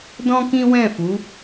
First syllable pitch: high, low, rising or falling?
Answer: high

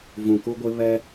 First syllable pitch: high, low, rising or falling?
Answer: low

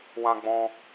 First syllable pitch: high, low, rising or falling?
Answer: high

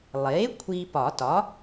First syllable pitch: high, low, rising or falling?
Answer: rising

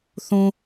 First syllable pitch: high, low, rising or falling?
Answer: high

